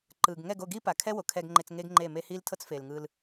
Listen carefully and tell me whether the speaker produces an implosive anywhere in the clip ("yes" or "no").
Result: no